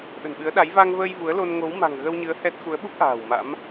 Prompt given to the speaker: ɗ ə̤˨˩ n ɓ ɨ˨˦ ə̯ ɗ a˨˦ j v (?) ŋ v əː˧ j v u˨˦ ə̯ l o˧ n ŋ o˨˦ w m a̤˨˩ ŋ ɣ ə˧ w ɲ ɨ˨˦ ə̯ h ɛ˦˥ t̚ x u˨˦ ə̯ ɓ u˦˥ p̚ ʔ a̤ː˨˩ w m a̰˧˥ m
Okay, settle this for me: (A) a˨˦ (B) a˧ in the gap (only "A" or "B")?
B